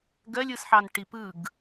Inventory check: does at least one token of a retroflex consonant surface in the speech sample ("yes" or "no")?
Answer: yes